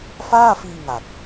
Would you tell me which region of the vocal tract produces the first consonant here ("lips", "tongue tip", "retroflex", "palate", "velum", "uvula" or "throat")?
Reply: lips